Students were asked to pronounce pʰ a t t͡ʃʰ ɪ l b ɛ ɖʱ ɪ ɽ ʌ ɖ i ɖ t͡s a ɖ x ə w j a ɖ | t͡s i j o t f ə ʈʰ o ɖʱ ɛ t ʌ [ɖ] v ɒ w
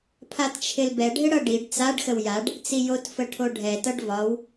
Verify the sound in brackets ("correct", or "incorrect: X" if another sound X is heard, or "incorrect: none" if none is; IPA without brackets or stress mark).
correct